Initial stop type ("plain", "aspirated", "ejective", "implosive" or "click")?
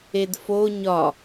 plain